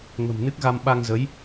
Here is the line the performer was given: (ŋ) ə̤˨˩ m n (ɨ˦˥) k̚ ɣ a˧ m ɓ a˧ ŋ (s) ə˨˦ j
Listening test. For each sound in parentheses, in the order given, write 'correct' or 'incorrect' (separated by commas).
correct, correct, incorrect